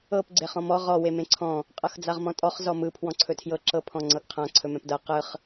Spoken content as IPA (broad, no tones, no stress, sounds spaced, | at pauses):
ɤ p ɡ͡ǀ e χ ɔ̃ m ɔ ʁ ɔ w e m ẽ ǀʰ ɔ̃ | qʼ ɤ x d͡z a ʁ m ɔ̃ tʼ ɔ χ z ɔ m ɯ pʰ w ɔ̃ ǀʰ ɵ tʰ j ɤ ǁ ɤ pʰ ɔ̃ ŋ͡ǀ ɤ ɡ qʰ ã ǀʰ ɵ m ɛ̃ p d ɤ q ɯ χ